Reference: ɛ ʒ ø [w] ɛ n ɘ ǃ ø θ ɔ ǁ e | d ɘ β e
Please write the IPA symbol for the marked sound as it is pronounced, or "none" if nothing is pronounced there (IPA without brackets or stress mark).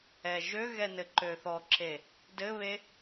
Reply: ɣ